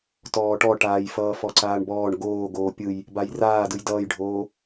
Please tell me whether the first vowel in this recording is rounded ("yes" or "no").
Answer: yes